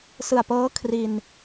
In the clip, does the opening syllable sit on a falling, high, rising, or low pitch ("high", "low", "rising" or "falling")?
low